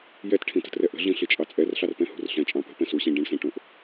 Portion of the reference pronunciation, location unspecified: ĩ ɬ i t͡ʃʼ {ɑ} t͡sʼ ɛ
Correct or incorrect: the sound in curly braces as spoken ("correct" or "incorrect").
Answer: correct